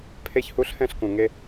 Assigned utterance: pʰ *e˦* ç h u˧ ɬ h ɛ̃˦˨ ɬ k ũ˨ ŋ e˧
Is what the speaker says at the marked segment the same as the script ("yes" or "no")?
no